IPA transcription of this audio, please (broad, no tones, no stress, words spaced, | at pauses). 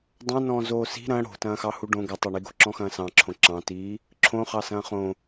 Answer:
dˤõnɔ̃ː zoːsi̤ ɾɐ̃ ɽo̤tɐ̃ːxɑ huɖõ ɡɐtˤoɳiɡo̤ ǁɔ̃xɐ̃ːsɑ̃ǁʰõ ǁɑ̃tiː | ǁʰõχɑ sɐ̃ːχõ